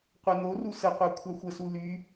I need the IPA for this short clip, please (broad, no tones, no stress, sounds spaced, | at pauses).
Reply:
qʷ ɛ n o r u s ə qʷ a kʷʰ a xʷ ə s u l y